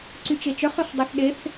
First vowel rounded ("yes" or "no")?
yes